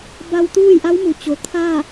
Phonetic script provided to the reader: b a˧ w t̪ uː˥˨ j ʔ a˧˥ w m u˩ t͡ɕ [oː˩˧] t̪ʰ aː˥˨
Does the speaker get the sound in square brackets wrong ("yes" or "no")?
yes